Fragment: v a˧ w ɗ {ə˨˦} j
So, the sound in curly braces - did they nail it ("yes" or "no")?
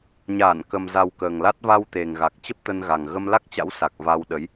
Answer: yes